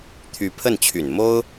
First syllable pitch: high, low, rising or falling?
rising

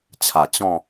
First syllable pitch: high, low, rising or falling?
low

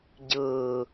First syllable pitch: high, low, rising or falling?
low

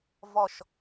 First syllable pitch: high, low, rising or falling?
falling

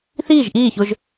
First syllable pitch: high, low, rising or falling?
falling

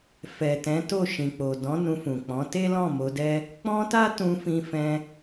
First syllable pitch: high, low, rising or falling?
low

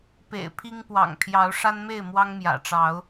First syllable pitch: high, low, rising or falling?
low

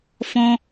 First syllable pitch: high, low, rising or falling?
high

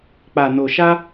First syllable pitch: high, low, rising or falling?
low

